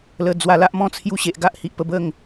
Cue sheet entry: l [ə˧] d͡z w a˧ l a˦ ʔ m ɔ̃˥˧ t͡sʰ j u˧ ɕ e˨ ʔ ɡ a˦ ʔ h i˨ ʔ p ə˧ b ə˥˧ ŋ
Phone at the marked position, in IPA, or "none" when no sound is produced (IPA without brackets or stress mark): ə˨˩